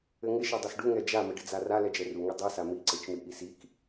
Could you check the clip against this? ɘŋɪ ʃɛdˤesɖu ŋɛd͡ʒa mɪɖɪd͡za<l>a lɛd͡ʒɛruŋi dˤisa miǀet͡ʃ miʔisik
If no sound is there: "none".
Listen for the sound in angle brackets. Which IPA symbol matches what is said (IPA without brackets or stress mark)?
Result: r